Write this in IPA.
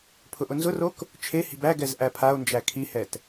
pʰ ʊ ʔ ʊ n z ʊ r o k | t͡ʃʰ e h i̤ b æ ɡ ɛ z ʔ æ pʰ a o̯ n d͡ʒ æ kʰ i h ɛ t

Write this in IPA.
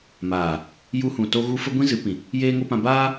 m aː˨ | j u˧ h ũ˨ t o˦ ɣ u˦ f ə˦ ɡʷ ĩ˦ z ɨ˨˦ p ĩ˨ | j eː˦ ŋ o˦ p ã˧ b aː˦

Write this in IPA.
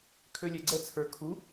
kʰ ø lʲ ɛ ɡ͡ǀ ɛ t͡sʰ ə˞ kʰ u

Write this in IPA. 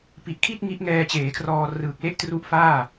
p i˨˩ ʔ kʰ i˥˩ t̚ ŋ i˦˥ ʔ ŋ ɛː˧ t͡ɕ eː˩˦ kʰ r ɔː˧ r ɯː˨˩ k̚ l e˦˥ ʔ t r u˦˥ ʔ f aː˥˩

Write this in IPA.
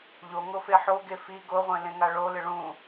ʎ o ŋ o f e ħ o ɡ e f i ɡ o ʁʷ ẽ l ẽ ŋ a ɭ o l ɪ ɭ ũ

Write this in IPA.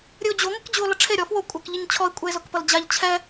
ɾʲ ɨ o̯ d͡ʑ o ŋʷ a k d͡ʑ u o̯ l ʌ ʈ͡ʂʰ e ɾʲ ɔ f w o kʷʼ a k ʎ ɨ ɲ t͡ɕʰ ɔ e̯ kʷʼ ɛ e̯ z o k p ʌ l d͡ʑ a ʎ t͡ɕʰ ɛ

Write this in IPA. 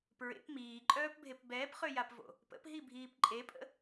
p ɹ ḛ p m iː ǃʼ œː p bʱ e p b ɛː p χ ø j a p v o̰ | p ə̰ p ɦ i bʱ iː p ǃʼ e pʼ ə̰

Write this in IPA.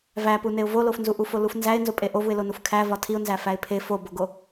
v æ p u n e ʊ̯ v o l o f n z u ʔ u f o l u f n z æ ɪ̯ n z o pʼ e ʔ o v u ɪ̯ l o n u f kʰ æ v ɒ tʰ i ʊ̯ n z æ f æ ɪ̯ pʰ e f o b o ɡ o

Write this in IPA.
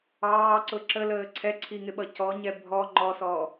ɑː ǀ ʊ ǁ ə l əː ǀʰ ɛ ǀʰ i ŋ ɪ ɓ ʌ c ɔ ɲ ɛ bʱ ɔ ŋ͡ǃ ɔ s ɔː

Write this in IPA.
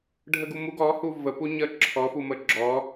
ɖʱ ə ɡ u m u ɡ ɔ h u v ə p u ɲ ə ǁʰ ɔ f u m ə ɡ͡ǁ ɔ

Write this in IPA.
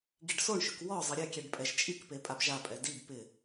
ɡ i ɖ s o ɳ ʃ ɵ k w ɔ zˤ ɪ ɾʲ ɛ kʲ ɛ ɖ pʼ ɛ ʒ t͡ʃʼ i k p e pʼ a b ʒ a pʼ ɛ d i b p ɪ

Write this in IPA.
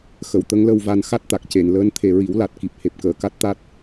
x ə˨˩˨ w t̪ ə˧˥ ŋ l ə˧ w v a˧ n x a˦˥ t̚ t̪ a˨˩ k̚ c e˨˩˨ n l əː˧˥ n t̪ʰ e˨˩ ɹ i˨˩˦ w l a˨˩ t̚ k i˨˩ p̚ h e˨˩ p̚ k əː˨˩˨ k a˦˥ t̚ t̪ a˦˥ t̚

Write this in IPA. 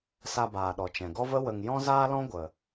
s a˧ b aː˨ ɗ ɔ˨ t͡ʃ ɛ̃˨ ɡ ɔ˦ v ə˦ w ə˨ ŋ j ɔ̃˦ z aː˦ l ɔ̃˦ ɡʷ ə˨

